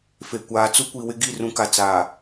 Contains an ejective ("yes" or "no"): no